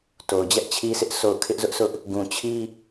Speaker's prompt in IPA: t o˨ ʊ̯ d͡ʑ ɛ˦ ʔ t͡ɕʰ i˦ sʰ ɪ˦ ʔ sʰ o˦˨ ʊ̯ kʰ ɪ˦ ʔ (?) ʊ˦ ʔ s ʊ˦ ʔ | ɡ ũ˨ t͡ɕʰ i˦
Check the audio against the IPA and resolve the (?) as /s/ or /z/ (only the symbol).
z